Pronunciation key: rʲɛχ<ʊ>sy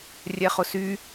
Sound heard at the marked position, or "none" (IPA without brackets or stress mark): ʊ